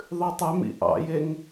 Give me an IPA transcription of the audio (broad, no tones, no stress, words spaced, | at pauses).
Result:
ðˤʉtˤœmḭ ʔɑ̰jeŋ